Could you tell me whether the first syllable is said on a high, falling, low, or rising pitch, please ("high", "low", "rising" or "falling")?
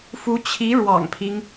rising